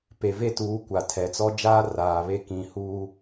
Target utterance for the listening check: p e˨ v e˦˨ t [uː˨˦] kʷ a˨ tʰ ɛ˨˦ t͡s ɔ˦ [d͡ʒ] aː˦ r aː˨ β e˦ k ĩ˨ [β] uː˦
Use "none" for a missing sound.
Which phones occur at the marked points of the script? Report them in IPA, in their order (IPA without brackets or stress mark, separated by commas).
uː˨˦, d͡ʒ, h